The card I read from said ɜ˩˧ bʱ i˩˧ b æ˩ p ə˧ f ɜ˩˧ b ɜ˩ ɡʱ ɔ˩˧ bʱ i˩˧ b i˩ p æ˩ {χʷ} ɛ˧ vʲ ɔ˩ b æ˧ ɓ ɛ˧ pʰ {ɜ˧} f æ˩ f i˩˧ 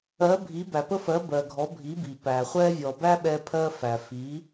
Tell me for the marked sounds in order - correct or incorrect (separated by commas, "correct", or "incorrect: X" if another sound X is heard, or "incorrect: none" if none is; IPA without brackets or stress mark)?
correct, correct